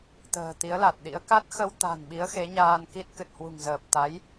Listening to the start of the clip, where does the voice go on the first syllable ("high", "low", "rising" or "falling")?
low